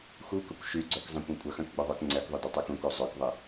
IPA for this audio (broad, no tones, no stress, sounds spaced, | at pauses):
x u k ʊ kʷ ʃ y ɡ͡ǀ œ k zˤ ɐ̃ kʷ ɛ̃ kʷʼ ɐ x œ̃ k ɡ͡b ʊ ðˤ œ k ŋ͡ǀ ɛ k ðˤ ʊ d ɐ tˤ ø k ũ k o zˤ œ k ðˤ ɪ